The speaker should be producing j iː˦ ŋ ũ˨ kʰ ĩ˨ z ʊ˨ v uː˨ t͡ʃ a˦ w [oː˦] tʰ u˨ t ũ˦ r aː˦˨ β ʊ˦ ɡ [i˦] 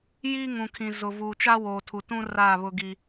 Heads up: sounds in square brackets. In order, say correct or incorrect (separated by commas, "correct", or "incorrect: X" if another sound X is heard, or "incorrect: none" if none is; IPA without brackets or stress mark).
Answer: incorrect: oː˨, correct